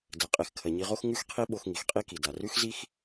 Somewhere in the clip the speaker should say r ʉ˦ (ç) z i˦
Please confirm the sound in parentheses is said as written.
no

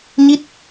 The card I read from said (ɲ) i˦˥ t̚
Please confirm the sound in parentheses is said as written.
yes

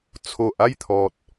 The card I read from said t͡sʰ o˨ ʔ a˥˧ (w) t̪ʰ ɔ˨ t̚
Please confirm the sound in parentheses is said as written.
no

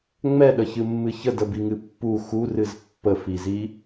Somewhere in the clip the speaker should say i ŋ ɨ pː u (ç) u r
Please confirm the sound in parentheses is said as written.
no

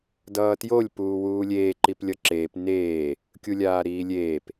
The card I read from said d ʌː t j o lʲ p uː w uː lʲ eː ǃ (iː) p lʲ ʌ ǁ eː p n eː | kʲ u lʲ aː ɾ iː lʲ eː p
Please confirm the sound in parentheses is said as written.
no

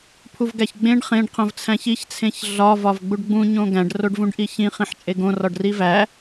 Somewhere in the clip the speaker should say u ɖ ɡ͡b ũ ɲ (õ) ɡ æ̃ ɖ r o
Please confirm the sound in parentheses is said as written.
yes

